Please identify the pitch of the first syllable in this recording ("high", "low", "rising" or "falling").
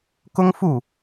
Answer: high